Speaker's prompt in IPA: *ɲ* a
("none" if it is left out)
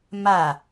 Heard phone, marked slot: m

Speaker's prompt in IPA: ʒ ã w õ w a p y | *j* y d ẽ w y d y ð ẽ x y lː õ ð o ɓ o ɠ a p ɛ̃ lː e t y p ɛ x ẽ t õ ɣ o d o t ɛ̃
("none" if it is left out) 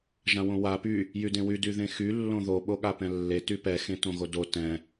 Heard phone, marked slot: j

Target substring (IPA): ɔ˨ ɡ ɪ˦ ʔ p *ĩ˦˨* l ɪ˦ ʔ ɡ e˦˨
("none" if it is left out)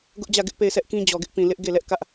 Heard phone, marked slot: ĩ˨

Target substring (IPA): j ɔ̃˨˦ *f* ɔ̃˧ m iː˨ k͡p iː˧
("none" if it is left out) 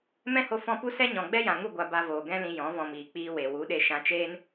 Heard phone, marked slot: v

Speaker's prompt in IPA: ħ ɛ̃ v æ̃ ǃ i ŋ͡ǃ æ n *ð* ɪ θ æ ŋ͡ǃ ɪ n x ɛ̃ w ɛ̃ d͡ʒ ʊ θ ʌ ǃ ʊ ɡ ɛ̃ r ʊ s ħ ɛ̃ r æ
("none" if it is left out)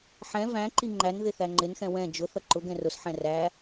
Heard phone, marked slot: ð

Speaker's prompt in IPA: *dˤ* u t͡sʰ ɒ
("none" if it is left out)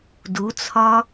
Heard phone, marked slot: d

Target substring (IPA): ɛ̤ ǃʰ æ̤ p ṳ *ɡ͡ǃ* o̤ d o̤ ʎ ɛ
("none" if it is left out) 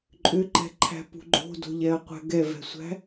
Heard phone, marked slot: ɡ͡ǃ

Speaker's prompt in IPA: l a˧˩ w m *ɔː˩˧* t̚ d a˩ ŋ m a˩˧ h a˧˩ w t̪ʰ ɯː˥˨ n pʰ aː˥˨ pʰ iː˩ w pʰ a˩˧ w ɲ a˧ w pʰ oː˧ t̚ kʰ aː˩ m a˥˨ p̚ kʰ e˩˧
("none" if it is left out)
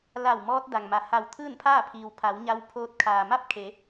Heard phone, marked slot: ɔː˧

